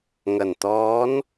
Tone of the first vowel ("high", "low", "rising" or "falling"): low